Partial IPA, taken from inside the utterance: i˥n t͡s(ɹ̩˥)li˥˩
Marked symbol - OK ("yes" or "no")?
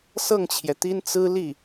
yes